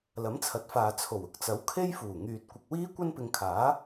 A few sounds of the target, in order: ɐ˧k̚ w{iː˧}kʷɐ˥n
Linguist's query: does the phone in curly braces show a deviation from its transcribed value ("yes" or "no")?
yes